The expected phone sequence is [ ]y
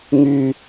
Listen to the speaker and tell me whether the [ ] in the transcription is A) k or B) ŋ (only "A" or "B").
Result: B